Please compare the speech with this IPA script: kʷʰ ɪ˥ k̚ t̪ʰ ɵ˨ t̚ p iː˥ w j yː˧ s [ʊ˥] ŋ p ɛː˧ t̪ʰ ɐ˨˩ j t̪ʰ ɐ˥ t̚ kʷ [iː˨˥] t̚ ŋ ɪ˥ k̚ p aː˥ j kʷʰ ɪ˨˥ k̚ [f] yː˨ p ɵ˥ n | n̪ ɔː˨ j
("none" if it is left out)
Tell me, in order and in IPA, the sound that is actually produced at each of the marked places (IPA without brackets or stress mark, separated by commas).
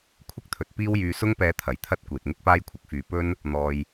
ʊ˥, iː˨, f